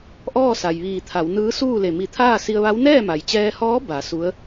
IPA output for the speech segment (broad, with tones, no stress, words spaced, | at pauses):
ʔɔː˥˨sa˩jʋiː˧˩t̪ʰa˩˧w nɯː˧˥suː˥˨le˧˩ mi˧˩t̪ʰaː˥˨si˧ə̯ʋa˧˥w nɛː˥˨ma˩jt͡ɕɛː˧hɔː˧˥ ba˩˧ su˧˥ə̯